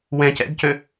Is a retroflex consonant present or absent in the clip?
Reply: absent